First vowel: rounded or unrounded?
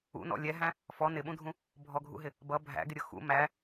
rounded